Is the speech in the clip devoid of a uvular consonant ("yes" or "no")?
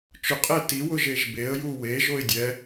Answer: no